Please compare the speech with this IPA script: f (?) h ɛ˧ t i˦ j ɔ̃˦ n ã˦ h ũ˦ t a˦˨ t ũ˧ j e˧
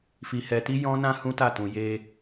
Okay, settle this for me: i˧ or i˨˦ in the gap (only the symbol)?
i˧